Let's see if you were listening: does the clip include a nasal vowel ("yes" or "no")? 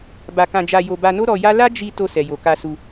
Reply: yes